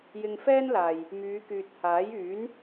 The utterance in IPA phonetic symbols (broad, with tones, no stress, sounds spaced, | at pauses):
j ɪ˧ ŋ f ɛː˥ n l aː˨ j | m yː˨˧ k yː˨ t̚ h aː˨˥ j yː˨˥ n